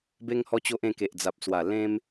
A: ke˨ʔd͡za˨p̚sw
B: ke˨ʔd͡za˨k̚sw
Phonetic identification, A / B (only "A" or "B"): A